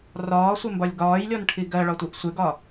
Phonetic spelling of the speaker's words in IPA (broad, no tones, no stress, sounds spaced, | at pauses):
r ɒː sʷ ɪ m b ɒ lʲ ɡ ɒː j lʲ ɔ n ʈʰ i ɡ ɜ ɭ ɒ tʷ i ʔ sʷ ɪ ɡ ɒ